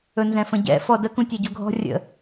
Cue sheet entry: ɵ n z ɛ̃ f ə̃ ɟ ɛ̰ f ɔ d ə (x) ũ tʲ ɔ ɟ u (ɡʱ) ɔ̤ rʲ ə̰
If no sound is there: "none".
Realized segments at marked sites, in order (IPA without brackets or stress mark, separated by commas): k, ɡʱ